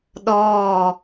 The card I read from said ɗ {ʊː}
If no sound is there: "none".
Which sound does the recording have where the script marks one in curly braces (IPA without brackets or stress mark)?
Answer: ɔː